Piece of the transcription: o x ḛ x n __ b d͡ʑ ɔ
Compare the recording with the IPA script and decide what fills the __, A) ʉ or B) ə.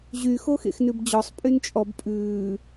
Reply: A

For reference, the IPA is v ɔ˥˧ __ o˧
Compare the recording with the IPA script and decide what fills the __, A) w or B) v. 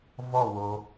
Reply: A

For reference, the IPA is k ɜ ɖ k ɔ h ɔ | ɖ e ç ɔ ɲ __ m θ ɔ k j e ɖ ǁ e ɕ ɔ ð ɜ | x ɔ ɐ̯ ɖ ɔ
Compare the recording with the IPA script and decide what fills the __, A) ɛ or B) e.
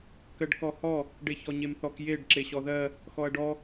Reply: B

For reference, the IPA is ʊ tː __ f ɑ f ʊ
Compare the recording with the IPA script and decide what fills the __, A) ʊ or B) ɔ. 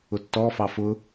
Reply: B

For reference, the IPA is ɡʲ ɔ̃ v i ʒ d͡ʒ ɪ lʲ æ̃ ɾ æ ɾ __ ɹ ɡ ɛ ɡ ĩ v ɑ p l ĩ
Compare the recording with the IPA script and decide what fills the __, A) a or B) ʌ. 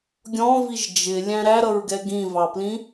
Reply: B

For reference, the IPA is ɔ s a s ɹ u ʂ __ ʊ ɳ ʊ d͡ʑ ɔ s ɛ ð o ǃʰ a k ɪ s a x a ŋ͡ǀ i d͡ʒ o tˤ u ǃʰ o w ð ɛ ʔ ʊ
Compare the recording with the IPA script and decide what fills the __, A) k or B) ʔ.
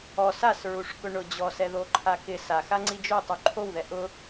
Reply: A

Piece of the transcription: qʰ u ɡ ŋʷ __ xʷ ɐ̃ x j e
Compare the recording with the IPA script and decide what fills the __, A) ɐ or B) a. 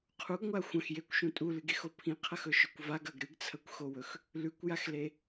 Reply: B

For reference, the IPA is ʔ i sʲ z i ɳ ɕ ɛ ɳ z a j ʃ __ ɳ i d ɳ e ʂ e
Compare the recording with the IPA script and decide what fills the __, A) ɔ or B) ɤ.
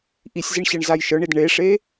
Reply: B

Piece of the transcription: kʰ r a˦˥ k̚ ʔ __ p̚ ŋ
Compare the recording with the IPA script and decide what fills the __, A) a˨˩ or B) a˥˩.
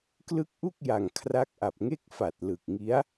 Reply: A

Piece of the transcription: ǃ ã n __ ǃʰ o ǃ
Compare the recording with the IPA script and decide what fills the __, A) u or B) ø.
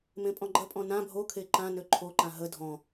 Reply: B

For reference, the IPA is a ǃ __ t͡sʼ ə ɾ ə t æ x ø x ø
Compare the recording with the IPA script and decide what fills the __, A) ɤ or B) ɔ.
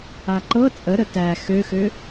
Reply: A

